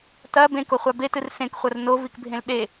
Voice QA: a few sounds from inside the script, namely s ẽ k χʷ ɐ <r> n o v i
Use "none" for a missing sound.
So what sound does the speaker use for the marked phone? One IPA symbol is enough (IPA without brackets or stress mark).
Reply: r